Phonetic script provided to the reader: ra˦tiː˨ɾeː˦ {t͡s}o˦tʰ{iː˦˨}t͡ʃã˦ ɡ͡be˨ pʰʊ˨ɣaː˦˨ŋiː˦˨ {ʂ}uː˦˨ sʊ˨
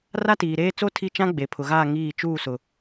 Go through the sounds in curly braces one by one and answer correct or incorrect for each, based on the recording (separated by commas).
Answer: correct, incorrect, incorrect